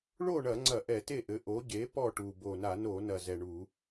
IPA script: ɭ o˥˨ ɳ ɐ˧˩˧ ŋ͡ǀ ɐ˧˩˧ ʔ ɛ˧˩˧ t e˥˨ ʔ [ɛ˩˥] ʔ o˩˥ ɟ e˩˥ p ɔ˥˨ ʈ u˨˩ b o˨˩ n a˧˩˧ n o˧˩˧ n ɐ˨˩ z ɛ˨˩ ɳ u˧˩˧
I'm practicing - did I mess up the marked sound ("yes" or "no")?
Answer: yes